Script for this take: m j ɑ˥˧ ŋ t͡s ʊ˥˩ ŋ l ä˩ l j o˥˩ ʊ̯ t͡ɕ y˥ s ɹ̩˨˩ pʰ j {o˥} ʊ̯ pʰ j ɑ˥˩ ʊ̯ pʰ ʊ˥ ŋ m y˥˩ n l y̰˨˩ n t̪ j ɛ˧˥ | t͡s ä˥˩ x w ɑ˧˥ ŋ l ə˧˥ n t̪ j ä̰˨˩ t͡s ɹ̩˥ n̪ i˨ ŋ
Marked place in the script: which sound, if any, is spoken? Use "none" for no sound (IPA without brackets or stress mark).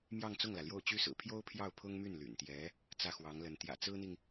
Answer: o˥